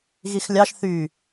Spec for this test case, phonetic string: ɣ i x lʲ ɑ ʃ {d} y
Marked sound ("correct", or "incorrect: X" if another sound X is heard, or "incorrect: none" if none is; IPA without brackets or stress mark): incorrect: θ